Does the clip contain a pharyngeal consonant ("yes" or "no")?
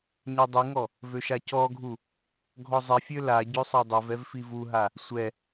no